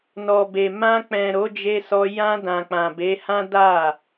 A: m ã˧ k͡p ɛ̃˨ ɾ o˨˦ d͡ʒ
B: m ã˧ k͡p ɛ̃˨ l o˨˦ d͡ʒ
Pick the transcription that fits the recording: A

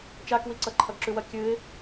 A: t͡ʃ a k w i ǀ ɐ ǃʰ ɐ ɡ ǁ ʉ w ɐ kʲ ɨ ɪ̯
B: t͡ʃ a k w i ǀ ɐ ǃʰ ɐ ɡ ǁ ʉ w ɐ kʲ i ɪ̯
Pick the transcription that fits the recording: A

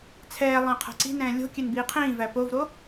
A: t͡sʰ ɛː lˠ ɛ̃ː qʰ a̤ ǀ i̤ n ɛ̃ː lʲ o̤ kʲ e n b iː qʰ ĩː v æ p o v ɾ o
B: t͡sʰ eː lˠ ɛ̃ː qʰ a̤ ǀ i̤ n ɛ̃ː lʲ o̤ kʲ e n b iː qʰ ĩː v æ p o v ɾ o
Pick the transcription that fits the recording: A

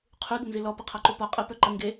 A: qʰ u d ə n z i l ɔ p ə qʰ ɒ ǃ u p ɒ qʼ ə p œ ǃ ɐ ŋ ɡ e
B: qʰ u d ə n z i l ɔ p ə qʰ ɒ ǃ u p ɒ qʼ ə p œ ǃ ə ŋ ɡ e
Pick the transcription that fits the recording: B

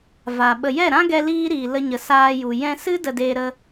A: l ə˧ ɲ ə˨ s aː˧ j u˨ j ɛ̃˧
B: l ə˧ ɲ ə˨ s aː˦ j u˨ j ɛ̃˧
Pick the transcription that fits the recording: A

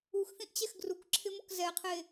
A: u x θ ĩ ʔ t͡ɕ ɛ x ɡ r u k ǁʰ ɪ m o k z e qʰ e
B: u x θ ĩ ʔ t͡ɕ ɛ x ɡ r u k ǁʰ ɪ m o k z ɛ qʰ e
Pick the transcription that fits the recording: B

